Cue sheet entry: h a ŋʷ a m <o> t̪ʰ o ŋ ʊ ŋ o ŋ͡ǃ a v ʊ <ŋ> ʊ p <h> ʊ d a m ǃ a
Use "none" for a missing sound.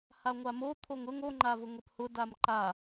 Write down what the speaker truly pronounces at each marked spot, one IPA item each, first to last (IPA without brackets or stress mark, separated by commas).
o, ŋ, h